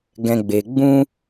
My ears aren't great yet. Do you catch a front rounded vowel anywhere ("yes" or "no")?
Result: no